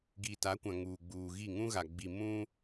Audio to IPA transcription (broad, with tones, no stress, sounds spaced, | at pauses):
ɡ i˨ t a˨˦ kʷ ã˨ ŋ uː˨ ɡ͡b uː˨ ɣ i˦˨ ŋ ũ˦ ɣ a˨ ɡ͡b i˨ m ũ˦